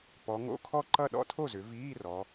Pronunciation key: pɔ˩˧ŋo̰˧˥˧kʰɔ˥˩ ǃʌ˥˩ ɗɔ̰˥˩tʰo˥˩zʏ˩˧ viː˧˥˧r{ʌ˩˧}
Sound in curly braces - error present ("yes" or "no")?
yes